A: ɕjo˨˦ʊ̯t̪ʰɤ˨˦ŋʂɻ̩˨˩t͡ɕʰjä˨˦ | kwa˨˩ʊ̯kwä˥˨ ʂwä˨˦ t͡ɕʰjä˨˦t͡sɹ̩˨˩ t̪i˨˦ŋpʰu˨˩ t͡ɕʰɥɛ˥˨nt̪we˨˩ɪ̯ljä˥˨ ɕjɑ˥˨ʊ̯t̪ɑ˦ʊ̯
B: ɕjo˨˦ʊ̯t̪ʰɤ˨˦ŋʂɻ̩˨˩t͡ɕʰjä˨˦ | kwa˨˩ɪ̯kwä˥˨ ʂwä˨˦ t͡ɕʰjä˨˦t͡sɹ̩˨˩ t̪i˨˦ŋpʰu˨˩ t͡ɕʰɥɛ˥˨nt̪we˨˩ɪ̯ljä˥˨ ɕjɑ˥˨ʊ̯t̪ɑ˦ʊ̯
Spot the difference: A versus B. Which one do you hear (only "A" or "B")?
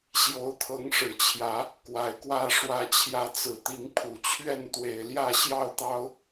B